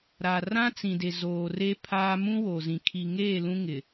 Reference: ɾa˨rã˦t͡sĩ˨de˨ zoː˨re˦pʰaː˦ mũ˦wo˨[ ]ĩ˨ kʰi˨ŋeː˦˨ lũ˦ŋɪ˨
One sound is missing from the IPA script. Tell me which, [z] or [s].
z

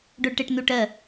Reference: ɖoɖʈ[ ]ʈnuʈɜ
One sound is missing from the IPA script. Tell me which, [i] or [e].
e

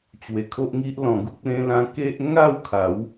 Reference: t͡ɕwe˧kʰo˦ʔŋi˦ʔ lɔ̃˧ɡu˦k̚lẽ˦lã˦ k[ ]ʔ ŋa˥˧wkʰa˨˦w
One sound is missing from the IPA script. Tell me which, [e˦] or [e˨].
e˦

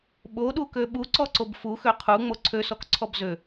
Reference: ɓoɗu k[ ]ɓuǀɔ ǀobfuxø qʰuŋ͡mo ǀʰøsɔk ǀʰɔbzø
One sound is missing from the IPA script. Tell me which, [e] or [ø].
ø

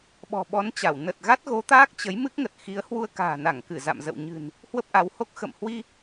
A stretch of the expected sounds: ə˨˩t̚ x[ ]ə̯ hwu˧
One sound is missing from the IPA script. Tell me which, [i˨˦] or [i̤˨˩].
i˨˦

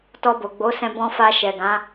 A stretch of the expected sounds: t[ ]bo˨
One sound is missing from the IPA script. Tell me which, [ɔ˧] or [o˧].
ɔ˧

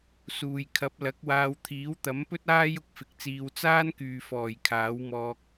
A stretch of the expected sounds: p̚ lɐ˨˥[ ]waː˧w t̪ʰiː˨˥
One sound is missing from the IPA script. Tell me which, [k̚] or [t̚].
k̚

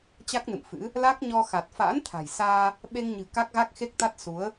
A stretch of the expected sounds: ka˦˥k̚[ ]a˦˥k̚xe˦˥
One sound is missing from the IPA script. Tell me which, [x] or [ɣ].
ɣ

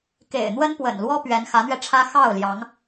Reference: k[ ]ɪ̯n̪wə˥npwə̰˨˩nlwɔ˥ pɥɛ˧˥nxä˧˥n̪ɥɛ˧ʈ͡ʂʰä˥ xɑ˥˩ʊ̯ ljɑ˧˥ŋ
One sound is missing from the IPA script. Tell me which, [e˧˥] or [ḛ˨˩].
ḛ˨˩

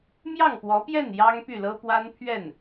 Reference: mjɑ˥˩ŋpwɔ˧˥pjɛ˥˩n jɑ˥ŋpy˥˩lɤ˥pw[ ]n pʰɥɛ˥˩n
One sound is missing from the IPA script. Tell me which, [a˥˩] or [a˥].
a˥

